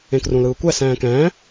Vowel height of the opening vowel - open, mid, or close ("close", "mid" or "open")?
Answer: mid